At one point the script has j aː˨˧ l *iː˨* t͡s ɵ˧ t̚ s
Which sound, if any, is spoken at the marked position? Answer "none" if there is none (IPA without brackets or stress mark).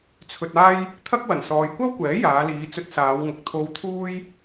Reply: iː˨˧